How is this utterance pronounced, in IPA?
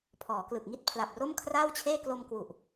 pʰ ɔː˩˦ k l ɯ˨˩ k̚ ŋ i˥˩ t̚ pʰ l a˨˩ p̚ r o˥˩ m kʰ r aː˥˩ w t͡ɕʰ eː˥˩ k l o˧ m k w u˨˩ ʔ

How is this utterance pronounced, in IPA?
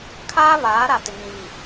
kʰ aː˦ β aː˨˦ ɾ a˨ t ɪ˨ ŋ ĩ˨ v i˨

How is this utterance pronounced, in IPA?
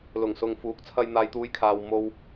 l ʊ˨˩ ŋ s ʊ˨ ŋ f uː˨˥ k̚ t͡sʰ ɐ˧ j n̪ aː˧ j t̪ uː˧ j kʰ aː˨ w m o˧ w

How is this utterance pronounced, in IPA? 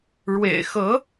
ɻ w ḛ˨˩ ɪ̯ x ɤ˧˥

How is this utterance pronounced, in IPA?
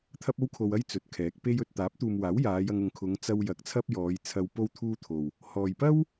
t̪ʰ ɐ˥ p̚ o˥ w kʰ o˧ w ɐ˥ j t͡s ɵ˨ t̚ kʰ ɛː˨˥ k̚ p e˥ j ɵ˨ t̚ t̪ aː˨˥ p̚ t̪ uː˨ m w aː˨˥ w j aː˨˧ j ɐ˧ ŋ ʊ˨˧ ŋ kʰ ʊ˨˧ ŋ t͡s ɐ˧ w j ɐ˨˥ k̚ t͡sʰ ɐ˥ p̚ j ɔː˨˧ j t͡sʰ ɐ˧ w p o˥ w t̪ʰ uː˥ t̪ʰ o˨ w | h ɔː˨ j p ɐ˥ w

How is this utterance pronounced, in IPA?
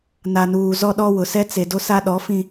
n a˨ n uː˨ z ɔ˦ ɗ ɔ˦ w ʊ˨ s ɛ˦ t͡s e˨ d o˦ s a˦ ɗ ɔ˨˦ f ĩ˨

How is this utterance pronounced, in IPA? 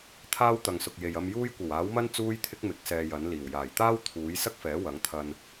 t̪ʰ aː˥ w t̪ ɐ˨ ŋ s ʊ˨ k̚ j e˨ j ɐ˧ m j uː˥ j kʷ ɐ˨˩ w aː˨˥ w m ɐ˥ n t͡s uː˥ j t̪ʰ ɪ˥ k̚ m ɪ˨˥ k̚ s ɛː˧ j ɐ˨˥ n l iː˨˩ w j aː˨˩ j t̪ aː˥ w t̪ʰ uː˨˥ j s ɐ˥ k̚ f ɛː˨˥ w ɐ˨˥ ŋ t̪ʰ ɐ˧ n

